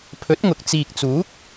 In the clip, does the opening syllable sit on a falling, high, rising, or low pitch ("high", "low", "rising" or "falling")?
rising